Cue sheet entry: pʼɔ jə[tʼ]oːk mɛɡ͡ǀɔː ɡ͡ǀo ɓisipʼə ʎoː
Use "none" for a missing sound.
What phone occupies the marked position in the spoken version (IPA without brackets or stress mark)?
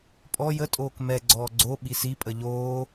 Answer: tʼ